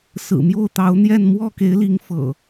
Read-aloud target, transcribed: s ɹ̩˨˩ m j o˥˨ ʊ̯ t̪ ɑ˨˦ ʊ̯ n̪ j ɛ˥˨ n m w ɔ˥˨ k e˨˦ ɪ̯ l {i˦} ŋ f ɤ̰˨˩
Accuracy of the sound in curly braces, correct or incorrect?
incorrect